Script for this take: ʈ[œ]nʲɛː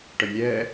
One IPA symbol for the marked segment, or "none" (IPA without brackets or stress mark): œ